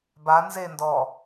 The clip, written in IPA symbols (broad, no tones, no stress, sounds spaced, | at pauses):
b a n z e n d ɔ